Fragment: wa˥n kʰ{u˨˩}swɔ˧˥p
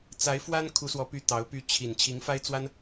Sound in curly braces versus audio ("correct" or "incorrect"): incorrect